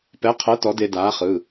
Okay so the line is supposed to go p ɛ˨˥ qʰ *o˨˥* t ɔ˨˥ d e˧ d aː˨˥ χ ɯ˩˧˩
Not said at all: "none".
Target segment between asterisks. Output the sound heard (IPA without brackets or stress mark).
ɤ˨˥